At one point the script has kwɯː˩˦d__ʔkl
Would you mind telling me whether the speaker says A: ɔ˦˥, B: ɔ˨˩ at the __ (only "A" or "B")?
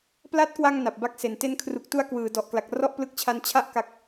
B